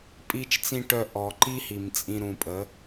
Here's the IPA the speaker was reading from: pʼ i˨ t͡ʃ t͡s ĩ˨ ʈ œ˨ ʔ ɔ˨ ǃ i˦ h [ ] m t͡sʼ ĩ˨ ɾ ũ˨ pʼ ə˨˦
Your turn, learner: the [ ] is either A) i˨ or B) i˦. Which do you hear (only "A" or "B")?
A